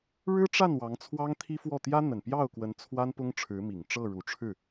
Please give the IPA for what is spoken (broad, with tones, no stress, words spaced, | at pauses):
ɻɻ̩˥ʈ͡ʂa˥˩n wɑ˧˥ŋt͡sʰwɑ˥ŋt̪ʰi˥fwɔ˥˩ t̪jä˥n̪ə˨˩npjɑ˥˩ʊ̯kwə˧˥n t͡sʰwa˥npʊ˥ŋʈ͡ʂʰɻ̩˧˥mi˨˩ŋ ʈ͡ʂɤ˥˩ɻu˨˩ʈ͡ʂʰɻ̩˥˩